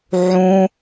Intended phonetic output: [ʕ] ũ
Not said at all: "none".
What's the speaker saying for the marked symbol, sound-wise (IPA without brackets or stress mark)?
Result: ʕ